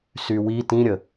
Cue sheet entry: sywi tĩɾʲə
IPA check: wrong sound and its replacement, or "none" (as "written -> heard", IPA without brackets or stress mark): none